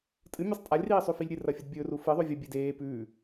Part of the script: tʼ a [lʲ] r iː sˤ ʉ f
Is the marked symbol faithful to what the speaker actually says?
yes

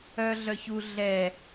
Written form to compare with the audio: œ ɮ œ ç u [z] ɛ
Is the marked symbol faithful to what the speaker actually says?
no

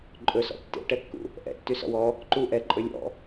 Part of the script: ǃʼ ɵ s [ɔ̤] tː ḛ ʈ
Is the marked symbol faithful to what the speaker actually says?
no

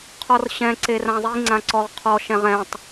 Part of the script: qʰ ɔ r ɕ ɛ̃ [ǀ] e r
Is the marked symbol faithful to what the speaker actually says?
yes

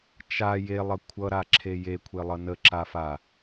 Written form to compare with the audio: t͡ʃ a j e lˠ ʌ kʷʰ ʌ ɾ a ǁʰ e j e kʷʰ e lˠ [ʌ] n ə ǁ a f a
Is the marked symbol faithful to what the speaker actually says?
yes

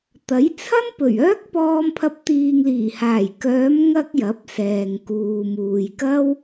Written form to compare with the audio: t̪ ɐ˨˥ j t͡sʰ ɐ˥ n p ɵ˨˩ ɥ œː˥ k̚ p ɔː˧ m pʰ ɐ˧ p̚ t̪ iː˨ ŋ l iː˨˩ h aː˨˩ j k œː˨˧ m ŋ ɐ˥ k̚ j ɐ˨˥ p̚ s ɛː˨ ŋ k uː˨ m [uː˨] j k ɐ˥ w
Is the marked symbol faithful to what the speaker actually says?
yes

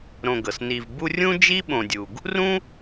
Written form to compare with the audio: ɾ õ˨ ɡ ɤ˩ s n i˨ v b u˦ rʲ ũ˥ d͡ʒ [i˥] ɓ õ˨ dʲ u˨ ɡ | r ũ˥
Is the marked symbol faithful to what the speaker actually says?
yes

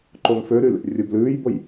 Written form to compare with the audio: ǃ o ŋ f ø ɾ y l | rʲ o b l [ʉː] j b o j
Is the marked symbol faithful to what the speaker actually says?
yes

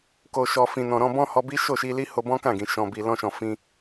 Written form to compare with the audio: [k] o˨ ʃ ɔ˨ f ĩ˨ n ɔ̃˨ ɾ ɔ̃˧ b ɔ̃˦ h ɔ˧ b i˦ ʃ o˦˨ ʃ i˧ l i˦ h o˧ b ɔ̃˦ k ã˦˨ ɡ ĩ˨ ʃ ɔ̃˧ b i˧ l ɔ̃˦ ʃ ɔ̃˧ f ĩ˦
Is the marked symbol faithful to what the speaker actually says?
yes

